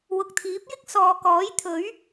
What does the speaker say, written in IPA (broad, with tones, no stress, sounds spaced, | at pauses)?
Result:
w ʊ˨ k̚ t̪ʰ iː˨˥ p̚ j ɪ˥ k̚ s ɔː˨ k ɔː˨˥ j t̪ʰ ɵ˨˥ ɥ